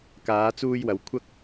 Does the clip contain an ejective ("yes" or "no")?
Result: no